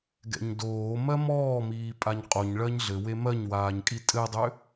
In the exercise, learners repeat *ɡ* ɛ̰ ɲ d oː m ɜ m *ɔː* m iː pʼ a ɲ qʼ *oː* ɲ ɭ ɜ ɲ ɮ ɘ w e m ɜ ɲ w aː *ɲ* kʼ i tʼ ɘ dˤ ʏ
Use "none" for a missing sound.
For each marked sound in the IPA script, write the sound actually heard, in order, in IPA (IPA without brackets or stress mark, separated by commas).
ɡ, ɔː, o, ɲ